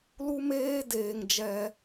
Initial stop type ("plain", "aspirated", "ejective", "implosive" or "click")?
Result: plain